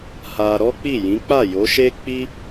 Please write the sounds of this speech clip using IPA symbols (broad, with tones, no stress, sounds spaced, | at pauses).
h a˧ ɾ ɔ˦ k͡p i˦˨ j ĩ˨˦ k͡p a˦˨ j o˨˦ ʃ e˦ k͡p i˦